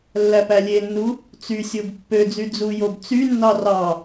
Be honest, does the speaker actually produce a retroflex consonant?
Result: no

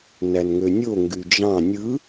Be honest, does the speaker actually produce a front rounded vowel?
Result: yes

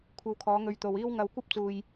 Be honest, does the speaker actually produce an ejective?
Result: no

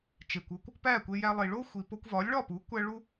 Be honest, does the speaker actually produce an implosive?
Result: no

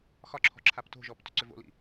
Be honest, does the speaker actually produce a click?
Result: yes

